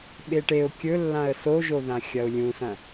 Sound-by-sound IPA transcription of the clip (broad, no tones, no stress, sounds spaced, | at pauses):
ɓ e ʈ e ʊ̯ kʲ ɵ lː ã ə̯ s o ʒ o ð ã xʲ ɐ ʊ̯ lʲ ũ s ɐ̃